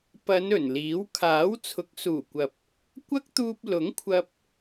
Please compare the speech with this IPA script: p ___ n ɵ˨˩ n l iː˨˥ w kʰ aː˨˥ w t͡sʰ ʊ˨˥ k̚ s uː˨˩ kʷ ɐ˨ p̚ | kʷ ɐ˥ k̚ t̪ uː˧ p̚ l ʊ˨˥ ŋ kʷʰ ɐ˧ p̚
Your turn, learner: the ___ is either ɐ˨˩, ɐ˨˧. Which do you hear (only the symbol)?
ɐ˨˧